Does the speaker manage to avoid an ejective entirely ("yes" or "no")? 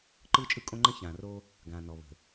no